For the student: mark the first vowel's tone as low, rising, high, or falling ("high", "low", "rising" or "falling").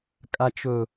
low